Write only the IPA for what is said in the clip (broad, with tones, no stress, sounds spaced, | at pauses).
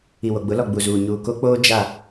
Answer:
i˨ w o˨ ɡ͡b ʊ˨˦ l ɔ˨ ɡ͡b u˨ z uː˨ ɲ uː˨ k o˦ k͡p oː˦ d͡ʒ a˦˨